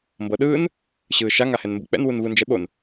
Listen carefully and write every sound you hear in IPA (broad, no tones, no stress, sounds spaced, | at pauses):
m b ɤ ɗ ɯː n | ɕ ɯː ʃ a ŋ a h ɛ n m b ṵ k͡p ɛ̰ n w u n v ɯ n d͡ʒ ɛ ɓ o n